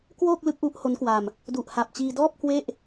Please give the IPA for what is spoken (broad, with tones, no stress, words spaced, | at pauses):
kwoː˥˩k̚ lɯ˦˥k̚ ʔu˦˥ʔho˦˥nkwa˧m | du˨˩ʔha˨˩p̚t͡ɕiː˧dɔː˥˩p̚ kwe˥˩ʔ